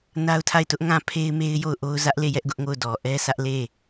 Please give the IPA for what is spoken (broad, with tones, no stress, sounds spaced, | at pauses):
n a˦ ʊ̯ tʰ a˦˨ ɪ̯ t ʊ˦ ʔ ŋ ã˦˨ pʰ e˦ ɪ̯ m e˦ ɪ̯ j o˦˨ ʊ̯ ʔ o˦ ʊ̯ z ä˦ ʔ l e˦˨ j ɛ˦ ʔ ɡ ʊ˦ ʔ ŋ o˦˨ ʊ̯ d ɔ˨ ʔ ɛ˦ s ä˦ ʔ l e˦˨